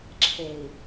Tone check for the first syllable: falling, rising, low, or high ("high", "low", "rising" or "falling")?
low